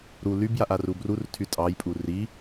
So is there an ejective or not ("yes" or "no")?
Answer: yes